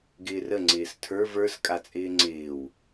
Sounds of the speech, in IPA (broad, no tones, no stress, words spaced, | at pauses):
ɡɪːrə ŋ͡ǀɪːstʰə˞v ə˞s kʼat͡sʼɪːŋ͡ǀɪːw